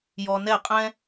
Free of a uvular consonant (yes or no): no